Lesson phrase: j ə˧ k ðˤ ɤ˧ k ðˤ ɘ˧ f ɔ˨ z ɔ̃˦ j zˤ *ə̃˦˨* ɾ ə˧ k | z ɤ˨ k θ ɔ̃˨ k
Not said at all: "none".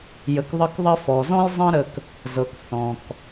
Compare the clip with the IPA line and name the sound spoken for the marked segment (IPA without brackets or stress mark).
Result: ə̃˦